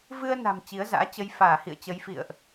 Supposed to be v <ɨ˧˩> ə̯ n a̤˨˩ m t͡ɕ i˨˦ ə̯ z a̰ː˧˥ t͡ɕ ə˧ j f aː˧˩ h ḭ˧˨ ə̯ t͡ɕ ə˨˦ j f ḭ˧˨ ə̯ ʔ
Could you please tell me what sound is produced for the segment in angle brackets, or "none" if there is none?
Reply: ɨ˧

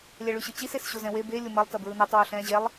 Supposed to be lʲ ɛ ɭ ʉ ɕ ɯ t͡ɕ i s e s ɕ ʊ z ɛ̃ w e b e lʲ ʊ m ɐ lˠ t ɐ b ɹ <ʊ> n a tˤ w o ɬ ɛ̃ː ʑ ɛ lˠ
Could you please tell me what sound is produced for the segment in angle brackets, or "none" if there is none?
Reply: ɯ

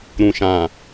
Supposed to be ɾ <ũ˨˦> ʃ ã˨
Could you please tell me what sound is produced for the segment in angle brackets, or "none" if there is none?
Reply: ũ˨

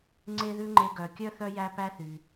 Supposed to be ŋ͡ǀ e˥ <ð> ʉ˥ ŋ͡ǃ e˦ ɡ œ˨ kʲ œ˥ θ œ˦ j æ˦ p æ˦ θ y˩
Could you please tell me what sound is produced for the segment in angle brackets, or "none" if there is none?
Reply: ð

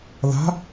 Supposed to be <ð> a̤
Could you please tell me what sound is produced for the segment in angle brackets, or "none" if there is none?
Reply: ð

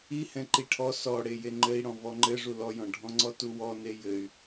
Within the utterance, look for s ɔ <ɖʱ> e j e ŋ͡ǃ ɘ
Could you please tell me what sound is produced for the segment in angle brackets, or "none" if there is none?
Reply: ɽ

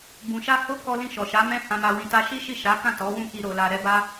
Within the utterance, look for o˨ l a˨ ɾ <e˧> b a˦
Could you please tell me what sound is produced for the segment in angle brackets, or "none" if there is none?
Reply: ɛ˧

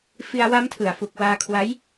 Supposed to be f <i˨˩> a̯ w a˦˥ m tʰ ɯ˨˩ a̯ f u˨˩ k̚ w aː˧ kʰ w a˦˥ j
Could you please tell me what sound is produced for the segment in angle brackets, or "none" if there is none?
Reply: i˧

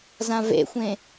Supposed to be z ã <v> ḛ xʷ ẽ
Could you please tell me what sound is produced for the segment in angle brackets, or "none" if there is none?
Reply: v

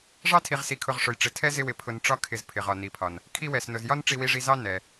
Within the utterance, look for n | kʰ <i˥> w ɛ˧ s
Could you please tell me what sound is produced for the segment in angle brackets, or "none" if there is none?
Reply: i˥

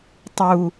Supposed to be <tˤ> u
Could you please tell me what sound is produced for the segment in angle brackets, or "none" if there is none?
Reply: tˤ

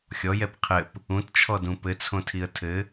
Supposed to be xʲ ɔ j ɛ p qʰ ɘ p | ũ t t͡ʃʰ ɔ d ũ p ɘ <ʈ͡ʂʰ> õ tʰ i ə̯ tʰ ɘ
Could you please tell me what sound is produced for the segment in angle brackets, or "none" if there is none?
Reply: t͡sʰ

